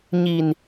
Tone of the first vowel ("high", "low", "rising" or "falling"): low